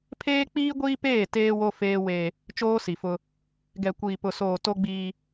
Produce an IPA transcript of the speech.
pʰ eː˦ k͡p iː˦ ɡʷ iː˦ p eː˦˨ t eː˦ w o˦ f eː˦ w e˦ | t͡ʃ oː˦ s i˨ f ʊ˦ | ɡ ɛ˨ kʷ iː˨ p ʊ˨ s oː˨ t o˦ ɡ͡b iː˦

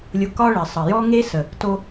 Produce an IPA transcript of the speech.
lʲ ʊ˧ k ɒ˦ ɭ ɘ˨ sˤ ə˨ j ɔ˦ ŋ e˦ s ə˨ | t o˧

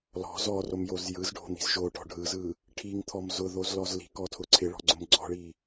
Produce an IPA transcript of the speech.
l ɔ̤ z ɔ r o m j o z j ɯ z ɖʱ o̤ n̪ i̤ z ʒ o ʈ ɔ̤ ɖʱ ɯ z ɯ | ʈʰ i ŋ t̪ʰ ɔ m z ʊ ð o z l ɔ z l i̤ k ɔ tʰ ʊ ǀʰ ɪ ɭ ɔ̤ ɡ͡ǀ ʊ m ɡ͡ǀ ɔ̤ ɭ i

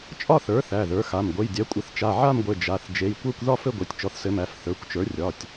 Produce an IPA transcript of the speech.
t͡ʃʼ ɒ˥˧ θ ə˞˩˥ θ æ˩˧˩ ð ə˞˩˥ x a˩˧˩ m ɡʷ ɘ˩˧˩ j dʲ æ˩˥ kʷʼ ɘ˩˥ θ t͡ʃ a˩˧˩ ʕ a˥˧ m ɡʷ ɘ˩˧˩ d͡ʒ a˩˧˩ θ d͡ʒ e˩˧˩ j kʷ ə˞˥˧ kʷ ð ɒ˥˧ f ɘ˥˧ ɡʷ ɘ˩˧˩ tʲ t͡ʃ ɔ˩˥ θ s ɘ˩˥ m æ˩˧˩ f θ ə˞˩˧˩ kʷ t͡ʃ ə˞˩˥ rʲ ɒ˩˧˩ tʲ

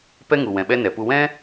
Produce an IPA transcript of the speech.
p ɛ˦ ŋ u˨ w ɛ̃˨ ɓ ɛ˦ n ɛ˨ p u˧ w ɛ̃˦

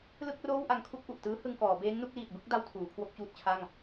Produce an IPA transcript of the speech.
l ɯ˥˩ k̚ r oː˥˩ w ʔ a˧ ŋ kʰ u˥˩ k̚ ʔ u˨˩ ʔ t ɯː˦˥ h ɯ˧ ŋ k ɔː˩˦ b eː˦˥ ŋ n u˥˩ k̚ l iː˨˩ t̚ b ɯ˦˥ k̚ d a˧ w tʰ uː˩˦ kʰ w o˥˩ k̚ t͡ɕ uː˥˩ t̚ t͡ɕʰ a˥˩ ŋ

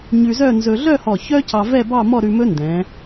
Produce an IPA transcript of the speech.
ɲ ʉ˧ z œ˥˧ n z ɵ˧ ɮ œ˥˧ h ɔ˧˩ ç œ˥ c ɑ˧ v ɛ˥˧ b ɑ˥˧ m ɔ˥˧ ɾ ʉ˧ m ɵ˥ n d ɛ̃˩˧

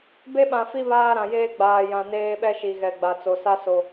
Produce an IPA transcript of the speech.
b e˦ ɓ ã˨ f i˦ β aː˦ ɾ ã˨ j eː˦ ɡ͡b aː˨ j ã˨ n eː˦ ɓ ɛ˦ ʃ i˨ ɣ ɛ˨ ɡ͡b a˨ t͡s o˨ s a˦ s o˦

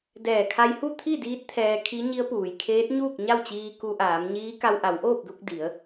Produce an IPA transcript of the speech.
d ɛː˧˩ kʰ a˧ j h u˥˨ t̪ʰ i˥˨ d iː˧˥ t̚ t̪ʰ ɛː˧ kʰ i˧˥ ɲ i˧˥ ə̯ p uː˩ j kʰ eː˧˥ t̚ ɲ uː˥˨ k̚ ɲ a˥˨ w t͡ɕ iː˧ k u˧ ʔ aː˩˧ m ɲ iː˧˥ k a˧ w ʔ a˩˧ w ʔ oː˥˨ p̚ d u˧ k̚ d i˩˧ ə̯

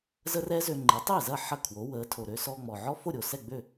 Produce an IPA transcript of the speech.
z ə˥ r ɛ˥ z ø˧ ŋ͡ǃ e˩˥ tˤ e˥˩ z ɐ˥˩ ħ ɐ˥˩ kʰ w o˩˥ w əː˩˥ tʰ o˩ ɾ ø˧ s ɔ˧ ŋ͡m ɔ˩ ʕ ɔ˥ f o˥˩ ɾʲ o˩ s ɛ˥˩ ɡ͡b ø˥˩

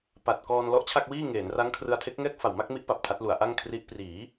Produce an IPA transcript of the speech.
p a˨˩ t̚ k ɔː˧ n l ɔ˦˥ ʔ t͡ɕʰ a˥˩ k̚ w iː˥˩ ŋ eː˩˦ n r a˦˥ ŋ kʰ r ɯ˧ a̯ tʰ e˦˥ k̚ ŋ ɛː˥˩ k̚ f a˨˩ w m a˥˩ k̚ m i˦˥ ʔ p a˨˩ p̚ tʰ a˦˥ t̚ l u˩˦ a̯ ʔ a˥˩ ŋ kʰ r i˦˥ ʔ p r iː˩˦

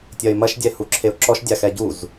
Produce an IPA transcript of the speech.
tʲ ɐ ɪ̯ m ɐ ʃ dʲ ɛ h u ǁʰ e ʊ̯ ǁ ɔ ʃ dʲ a x ɛ ɟ u z

